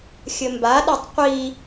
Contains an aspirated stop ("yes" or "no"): no